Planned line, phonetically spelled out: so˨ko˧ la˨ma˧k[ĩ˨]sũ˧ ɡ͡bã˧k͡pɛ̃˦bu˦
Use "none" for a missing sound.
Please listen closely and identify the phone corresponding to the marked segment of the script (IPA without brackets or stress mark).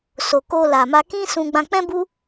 ĩ˦